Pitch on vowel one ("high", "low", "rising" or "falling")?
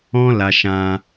high